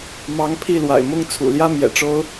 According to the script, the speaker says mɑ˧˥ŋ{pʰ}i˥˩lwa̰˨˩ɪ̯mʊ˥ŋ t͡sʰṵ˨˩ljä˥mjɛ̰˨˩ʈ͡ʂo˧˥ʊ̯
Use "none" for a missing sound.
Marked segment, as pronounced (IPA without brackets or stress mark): pʰ